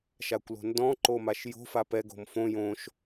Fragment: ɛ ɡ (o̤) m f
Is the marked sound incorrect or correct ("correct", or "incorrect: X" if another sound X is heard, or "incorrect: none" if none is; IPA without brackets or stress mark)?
correct